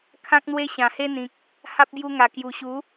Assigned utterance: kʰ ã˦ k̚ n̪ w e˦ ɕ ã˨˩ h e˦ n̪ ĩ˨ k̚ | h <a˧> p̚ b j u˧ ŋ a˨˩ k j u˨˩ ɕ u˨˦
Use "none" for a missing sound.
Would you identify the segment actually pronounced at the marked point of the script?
a˦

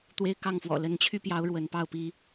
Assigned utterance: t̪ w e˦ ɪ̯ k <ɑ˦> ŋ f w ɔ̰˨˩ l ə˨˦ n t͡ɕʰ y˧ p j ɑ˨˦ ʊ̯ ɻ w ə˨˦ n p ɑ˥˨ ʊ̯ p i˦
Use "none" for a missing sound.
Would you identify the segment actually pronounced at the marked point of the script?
ɑ˥˨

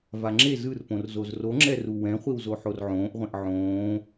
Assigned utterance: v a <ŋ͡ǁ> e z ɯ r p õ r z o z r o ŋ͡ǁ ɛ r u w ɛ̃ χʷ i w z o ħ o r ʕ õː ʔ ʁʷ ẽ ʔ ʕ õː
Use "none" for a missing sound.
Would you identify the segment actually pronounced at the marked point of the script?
ŋ͡ǁ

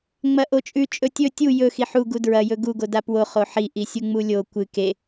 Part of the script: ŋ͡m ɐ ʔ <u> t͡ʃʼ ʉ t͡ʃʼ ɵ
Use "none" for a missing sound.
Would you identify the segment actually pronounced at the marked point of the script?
o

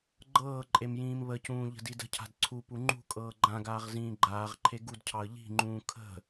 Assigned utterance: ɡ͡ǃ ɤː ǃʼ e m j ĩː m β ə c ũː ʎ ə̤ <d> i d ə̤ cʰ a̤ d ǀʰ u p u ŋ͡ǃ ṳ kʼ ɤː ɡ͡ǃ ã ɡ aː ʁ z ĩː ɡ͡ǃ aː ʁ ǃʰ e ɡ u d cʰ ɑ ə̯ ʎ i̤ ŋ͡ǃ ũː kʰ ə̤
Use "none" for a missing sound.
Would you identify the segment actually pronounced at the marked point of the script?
d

